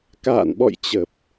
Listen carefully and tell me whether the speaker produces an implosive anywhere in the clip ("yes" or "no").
yes